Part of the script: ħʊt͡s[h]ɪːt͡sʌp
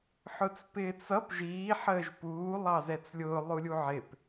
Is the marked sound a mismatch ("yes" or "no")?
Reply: yes